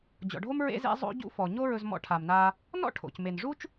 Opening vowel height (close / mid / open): mid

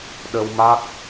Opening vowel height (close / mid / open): mid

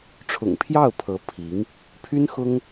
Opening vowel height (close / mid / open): close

